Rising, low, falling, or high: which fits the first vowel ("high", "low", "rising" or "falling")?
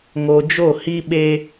low